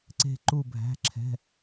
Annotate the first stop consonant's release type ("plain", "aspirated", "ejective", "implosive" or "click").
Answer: click